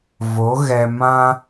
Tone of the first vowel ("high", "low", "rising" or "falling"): rising